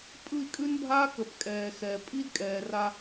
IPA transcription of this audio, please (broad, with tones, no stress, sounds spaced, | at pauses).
pʼ ɯ˦˨ i̯ kʼ ʉ˦ n bʱ aː˦ k ə˨ p kʼ ɛː˨ x ɛ˨ pʼ i˦ d kʼ ɛː˨ r a˦